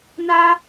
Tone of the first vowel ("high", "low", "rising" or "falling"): high